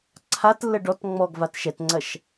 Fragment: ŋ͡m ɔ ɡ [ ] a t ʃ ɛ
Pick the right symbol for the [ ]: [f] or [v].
v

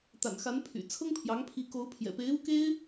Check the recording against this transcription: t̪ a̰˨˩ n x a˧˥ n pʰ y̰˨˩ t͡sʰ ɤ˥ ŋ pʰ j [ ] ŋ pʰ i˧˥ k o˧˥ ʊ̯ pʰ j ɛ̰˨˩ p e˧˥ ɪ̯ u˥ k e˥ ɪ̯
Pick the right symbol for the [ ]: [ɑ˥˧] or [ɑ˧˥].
ɑ˧˥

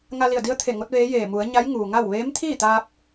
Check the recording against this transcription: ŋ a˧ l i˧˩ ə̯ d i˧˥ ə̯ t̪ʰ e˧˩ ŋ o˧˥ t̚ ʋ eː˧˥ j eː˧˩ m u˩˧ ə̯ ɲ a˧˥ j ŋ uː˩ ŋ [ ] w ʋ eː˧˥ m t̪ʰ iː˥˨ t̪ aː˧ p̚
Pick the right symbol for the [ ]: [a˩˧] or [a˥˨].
a˥˨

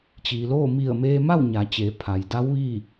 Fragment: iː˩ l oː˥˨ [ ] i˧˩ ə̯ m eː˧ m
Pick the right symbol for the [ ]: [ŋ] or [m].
m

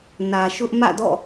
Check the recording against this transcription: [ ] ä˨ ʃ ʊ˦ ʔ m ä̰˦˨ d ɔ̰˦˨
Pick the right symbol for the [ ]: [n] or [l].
n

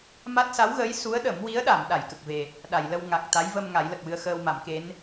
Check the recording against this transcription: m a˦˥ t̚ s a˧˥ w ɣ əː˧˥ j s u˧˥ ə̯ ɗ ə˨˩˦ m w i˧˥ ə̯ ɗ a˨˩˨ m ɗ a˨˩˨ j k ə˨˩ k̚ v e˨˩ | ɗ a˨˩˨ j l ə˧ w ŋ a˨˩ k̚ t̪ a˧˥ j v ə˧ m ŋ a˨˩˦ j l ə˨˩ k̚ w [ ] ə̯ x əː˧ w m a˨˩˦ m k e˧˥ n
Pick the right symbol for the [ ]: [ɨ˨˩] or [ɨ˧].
ɨ˧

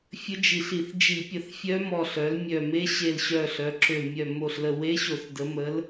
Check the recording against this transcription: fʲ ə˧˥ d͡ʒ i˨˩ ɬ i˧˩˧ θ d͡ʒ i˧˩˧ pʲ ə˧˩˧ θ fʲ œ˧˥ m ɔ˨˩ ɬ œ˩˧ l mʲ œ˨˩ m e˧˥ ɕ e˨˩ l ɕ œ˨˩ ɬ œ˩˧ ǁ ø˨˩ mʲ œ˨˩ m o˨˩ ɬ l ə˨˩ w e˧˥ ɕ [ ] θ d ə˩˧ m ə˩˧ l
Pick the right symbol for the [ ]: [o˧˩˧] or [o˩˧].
o˧˩˧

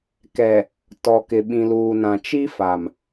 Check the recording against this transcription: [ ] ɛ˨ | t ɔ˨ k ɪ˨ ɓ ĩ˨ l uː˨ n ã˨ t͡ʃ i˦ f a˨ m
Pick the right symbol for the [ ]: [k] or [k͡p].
k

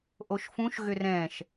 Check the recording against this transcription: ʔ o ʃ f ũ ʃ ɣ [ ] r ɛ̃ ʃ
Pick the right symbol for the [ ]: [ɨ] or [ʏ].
ʏ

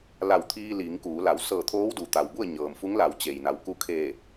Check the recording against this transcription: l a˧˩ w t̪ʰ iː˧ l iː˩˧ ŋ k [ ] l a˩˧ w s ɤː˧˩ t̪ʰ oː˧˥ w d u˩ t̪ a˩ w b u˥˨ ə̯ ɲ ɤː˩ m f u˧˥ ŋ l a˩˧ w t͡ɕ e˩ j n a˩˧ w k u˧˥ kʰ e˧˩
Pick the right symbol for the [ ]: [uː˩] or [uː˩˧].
uː˩˧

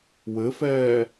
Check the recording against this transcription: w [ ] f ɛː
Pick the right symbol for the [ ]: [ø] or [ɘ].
ɘ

